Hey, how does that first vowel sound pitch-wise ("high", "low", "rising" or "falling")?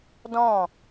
falling